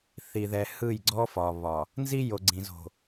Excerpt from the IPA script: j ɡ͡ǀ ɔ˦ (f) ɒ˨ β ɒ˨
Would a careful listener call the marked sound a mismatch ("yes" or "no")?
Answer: no